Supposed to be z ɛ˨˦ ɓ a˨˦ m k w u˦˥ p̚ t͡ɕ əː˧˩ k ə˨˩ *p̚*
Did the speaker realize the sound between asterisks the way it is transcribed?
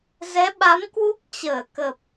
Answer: yes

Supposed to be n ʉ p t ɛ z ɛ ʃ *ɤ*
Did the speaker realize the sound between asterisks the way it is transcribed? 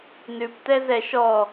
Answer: no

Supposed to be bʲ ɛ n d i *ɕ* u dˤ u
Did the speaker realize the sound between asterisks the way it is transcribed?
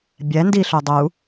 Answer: no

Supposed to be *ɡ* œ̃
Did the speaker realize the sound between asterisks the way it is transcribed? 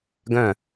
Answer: yes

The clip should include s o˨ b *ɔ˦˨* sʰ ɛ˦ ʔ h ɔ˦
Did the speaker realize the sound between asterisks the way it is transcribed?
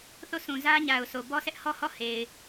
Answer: no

